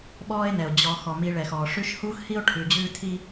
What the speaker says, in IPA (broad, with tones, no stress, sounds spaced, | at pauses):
ɓ ɔː˦ e̯ n ɛ˩ o̯ d͡ʑ ɔ˨ x ɔ˩ m i˨ ɭ ɛ˩ x ɔː˩ ʂ ʉ˦ ʃ h uː˥ x h i˥ o̯ ʈʰ ʉ˨ d͡ʑ ʉː˦ tʰ i˦